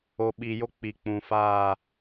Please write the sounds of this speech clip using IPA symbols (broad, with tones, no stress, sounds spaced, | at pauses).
o˨ ɓ iː˨ j o˦ k͡p i˨ k͡p ũ˨ f aː˦˨